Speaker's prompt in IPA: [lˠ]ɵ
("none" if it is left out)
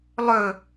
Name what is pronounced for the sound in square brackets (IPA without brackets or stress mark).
lˠ